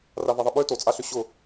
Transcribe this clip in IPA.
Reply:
ravɐðˤəɓø tot͡sʼaɬʏ ɕʊ

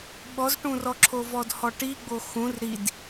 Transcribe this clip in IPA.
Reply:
ɓɔzʈũrɔǁʰo vɔdhɔʈi ɡ͡boxũr ɾid

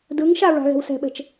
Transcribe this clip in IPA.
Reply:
dɯŋʃa ɹa̤ɣɛ̤wsɛ̤ɓɛ̤t͡ʃ

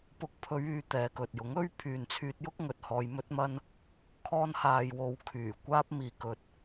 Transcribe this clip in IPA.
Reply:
pʊ˨˥k̚pʰɵ˨˧ɥyː˨ t̪ɛː˨˧kɵ˨t̚jʊ˨˥ŋɵ˥ɥ pʰyː˨nt͡sʰyː˧t̚jʊ˥k̚ ŋɵ˨t̚hɔː˧j mɵ˥t̚mɐ˥n | kʰɔː˧nhaː˨jwo˨w kʰyː˨˩kʷaː˧p̚ miː˨kɵ˨t̚

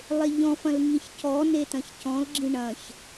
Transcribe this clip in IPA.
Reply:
lˠeʎɔ̃fɐ̃l ŋĩçcɔne tɐ̃çcɔ̃lɡ͡ǁĩ ɳɐ̃ç

